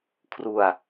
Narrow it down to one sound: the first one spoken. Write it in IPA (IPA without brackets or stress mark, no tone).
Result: kʰ